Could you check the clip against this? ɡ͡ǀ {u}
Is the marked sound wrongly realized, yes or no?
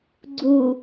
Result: no